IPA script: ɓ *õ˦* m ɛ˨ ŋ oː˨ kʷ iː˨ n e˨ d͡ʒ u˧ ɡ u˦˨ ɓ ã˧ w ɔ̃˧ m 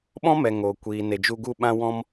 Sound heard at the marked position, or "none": ɔ̃˦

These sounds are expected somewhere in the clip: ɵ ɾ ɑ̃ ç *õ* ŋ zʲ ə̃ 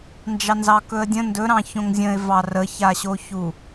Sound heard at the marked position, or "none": õ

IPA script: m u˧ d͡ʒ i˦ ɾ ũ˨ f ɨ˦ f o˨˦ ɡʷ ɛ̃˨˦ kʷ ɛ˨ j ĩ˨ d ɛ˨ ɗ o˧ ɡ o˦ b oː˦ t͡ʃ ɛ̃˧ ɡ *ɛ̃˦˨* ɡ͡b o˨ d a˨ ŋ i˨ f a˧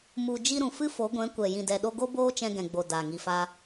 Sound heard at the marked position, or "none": ɛ̃˨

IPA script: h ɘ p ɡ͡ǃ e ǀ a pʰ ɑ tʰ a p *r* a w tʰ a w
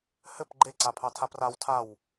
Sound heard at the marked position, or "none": r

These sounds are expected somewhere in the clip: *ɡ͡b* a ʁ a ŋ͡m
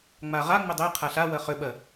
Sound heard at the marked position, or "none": ŋ͡m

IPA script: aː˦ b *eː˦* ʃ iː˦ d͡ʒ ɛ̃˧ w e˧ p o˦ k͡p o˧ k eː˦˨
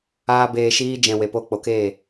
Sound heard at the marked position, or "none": eː˦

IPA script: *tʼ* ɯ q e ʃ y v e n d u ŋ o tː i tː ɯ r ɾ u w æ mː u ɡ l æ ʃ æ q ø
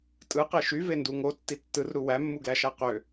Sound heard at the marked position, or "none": tʼ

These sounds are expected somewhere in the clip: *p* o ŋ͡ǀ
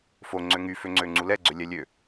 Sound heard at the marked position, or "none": f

